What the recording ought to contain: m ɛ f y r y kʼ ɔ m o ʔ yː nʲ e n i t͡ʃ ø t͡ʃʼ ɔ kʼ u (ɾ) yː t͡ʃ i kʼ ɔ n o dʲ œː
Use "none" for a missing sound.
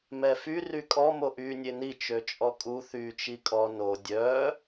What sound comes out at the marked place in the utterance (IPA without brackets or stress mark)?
θ